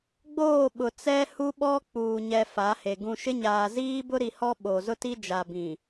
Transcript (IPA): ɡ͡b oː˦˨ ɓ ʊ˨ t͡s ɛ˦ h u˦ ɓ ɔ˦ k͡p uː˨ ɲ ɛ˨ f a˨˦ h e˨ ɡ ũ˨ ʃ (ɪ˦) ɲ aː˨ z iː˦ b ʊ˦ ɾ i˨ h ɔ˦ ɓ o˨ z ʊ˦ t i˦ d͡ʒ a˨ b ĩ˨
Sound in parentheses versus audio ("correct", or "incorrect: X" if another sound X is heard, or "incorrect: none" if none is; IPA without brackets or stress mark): correct